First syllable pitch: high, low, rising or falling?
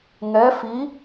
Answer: rising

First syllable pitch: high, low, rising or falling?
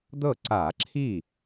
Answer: falling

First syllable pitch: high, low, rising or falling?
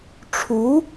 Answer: rising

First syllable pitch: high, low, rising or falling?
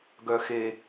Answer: low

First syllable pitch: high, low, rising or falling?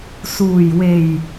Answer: low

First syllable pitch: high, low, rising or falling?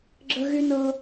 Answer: high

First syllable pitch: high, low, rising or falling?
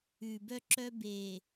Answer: low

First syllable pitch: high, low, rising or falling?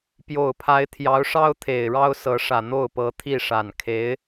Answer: low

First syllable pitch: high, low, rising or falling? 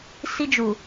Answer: high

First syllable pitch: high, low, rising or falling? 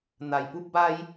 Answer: low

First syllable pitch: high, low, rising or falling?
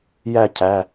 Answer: falling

